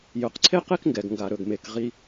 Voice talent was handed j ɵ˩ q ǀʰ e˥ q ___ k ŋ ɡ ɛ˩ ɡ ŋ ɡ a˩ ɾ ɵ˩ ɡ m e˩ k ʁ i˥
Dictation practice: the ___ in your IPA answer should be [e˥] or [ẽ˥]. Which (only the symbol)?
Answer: e˥